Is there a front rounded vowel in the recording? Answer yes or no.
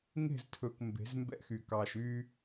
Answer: yes